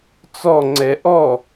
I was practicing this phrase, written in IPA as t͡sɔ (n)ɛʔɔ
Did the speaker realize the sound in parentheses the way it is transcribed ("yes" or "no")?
no